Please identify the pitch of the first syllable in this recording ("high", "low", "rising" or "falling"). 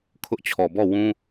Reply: high